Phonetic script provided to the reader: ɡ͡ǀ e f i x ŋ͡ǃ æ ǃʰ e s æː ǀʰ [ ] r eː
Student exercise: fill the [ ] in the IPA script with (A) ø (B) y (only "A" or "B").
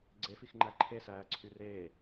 B